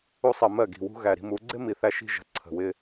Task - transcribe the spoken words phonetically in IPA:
u˦ sˤ ɜ˧ m ɜ˦˨ ɡ i̤˨ w ṳ˧ ɣ æ˨ ɾ i̤˧ m u˨˦ ɡ͡ǀ ɪ˦ m i˨ θ æ˧ ʃ i̤˧ ʒ ə̤˨ ǀʰ ə̤˨ w ɪ˧

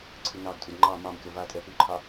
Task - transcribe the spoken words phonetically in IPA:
ǀʰ ɨ n ɑ ɡ tʼ u d ŋ͡ǃ ɑ m ɑ m kʲ ɔ v a tʼ ɛ p ʉ ǃʰ ɑ

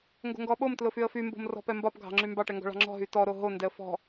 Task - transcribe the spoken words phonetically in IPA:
ŋ ɡ o̤ ŋ ɡ ɔ ɓ o m t l ʊ f y ə̯ f y m b o̤ m r ɔ̤ p ɛ m b ɒ p ɡʱ ɑ̤ ŋ͡ǁ y m b ɑ ʈ ɛ ŋ ɡ ɔ̤ ɭ ɑ̤ ŋ͡ǁ ɔ̤ ɦ y t ɔ ɾ o ɦ o n d ɛ ə̯ f ɔ̤

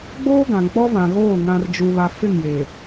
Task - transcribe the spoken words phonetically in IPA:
ɡ͡b oː˦ ɡ ã˨ ŋ k͡p ɔ˦ v ã˨ ɣ oː˦˨ ŋ ã˨ r d͡ʒ u˨ β a˨ f ɪ˦˨ ŋ j eː˨

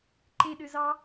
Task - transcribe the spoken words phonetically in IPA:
ǃ e ɗ ø z ɑ

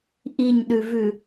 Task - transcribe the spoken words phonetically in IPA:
ʔ i ɲ ɗ ʉ v ʉ

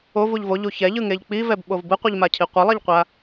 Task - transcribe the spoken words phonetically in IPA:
o v u ʎ v o ʎ u ç ɛ ʎ ɯ ŋ e ʎ k͡p i v ɛ b ɓ o v b ɯ qʷ ɯ ʎ m a cʰ i qʷ ʌ lˠ ɛ ʎ qʷ a

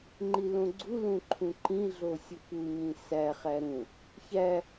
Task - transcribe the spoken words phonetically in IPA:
ŋ͡ǃ i l õ ɡ͡ǀ u l ũ ǃʰ ũ ǃ ĩ ɮ o sʲ ʊ p u ɲ ĩ s æ χ æ ɾ ũ | ç æ

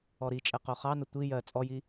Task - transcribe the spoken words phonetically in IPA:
ɔ ɾ i t͡ʃʼ ɛ q o χ ɑ n ə tʷ i j ɜ t͡sʼ ɔ j i

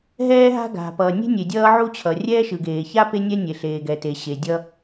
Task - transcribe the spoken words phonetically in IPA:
ɦ ɛː˥ ɦ a̤˥ ɡ a̤˩ p ʌː˩ nʲ e̤˥ nʲ e˩ dʲ ʌː˥ ʕ u˥ t͡ɕʰ ʌ˩ rʲ ɛː˥ ʃ ɯ˩ ɡ eː˩ ç a˥ p e˥ nʲ ɛ˥ nʲ e˩ ɬ eː˩ ɡ ɛ˩ t e˩ ɕ e˩ dʲ ʌ˥

